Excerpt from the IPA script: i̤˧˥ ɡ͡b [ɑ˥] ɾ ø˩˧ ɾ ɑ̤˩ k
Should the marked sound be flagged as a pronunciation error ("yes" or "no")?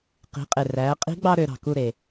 no